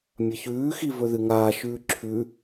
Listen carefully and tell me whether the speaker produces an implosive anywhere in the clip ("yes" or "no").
no